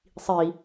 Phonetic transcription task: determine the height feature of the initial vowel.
high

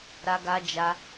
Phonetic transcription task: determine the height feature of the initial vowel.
low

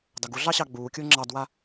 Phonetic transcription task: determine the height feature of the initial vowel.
low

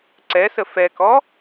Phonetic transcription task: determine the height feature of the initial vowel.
mid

